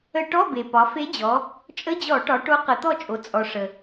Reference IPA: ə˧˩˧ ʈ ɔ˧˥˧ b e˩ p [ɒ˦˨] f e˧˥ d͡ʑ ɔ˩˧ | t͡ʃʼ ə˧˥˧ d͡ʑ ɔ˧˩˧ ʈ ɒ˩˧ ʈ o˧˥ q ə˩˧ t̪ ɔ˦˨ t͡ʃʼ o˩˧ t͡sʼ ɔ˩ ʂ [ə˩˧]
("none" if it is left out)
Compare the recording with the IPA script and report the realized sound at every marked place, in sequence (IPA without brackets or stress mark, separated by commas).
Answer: ɒ˩˧, ə˩